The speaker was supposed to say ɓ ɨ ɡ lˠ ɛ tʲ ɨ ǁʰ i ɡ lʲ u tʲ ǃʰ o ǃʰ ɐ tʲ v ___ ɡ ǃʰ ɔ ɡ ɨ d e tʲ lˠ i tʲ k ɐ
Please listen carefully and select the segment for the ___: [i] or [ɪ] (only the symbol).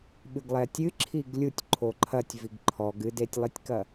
i